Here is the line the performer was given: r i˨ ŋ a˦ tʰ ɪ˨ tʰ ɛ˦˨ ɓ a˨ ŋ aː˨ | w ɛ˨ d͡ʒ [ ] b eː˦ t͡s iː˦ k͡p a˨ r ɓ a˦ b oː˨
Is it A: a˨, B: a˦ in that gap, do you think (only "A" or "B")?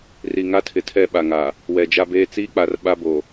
B